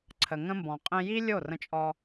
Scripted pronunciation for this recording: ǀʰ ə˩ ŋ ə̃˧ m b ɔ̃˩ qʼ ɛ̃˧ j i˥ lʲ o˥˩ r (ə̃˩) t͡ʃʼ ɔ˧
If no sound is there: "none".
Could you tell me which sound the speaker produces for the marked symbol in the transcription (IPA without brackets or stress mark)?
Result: ə̃˧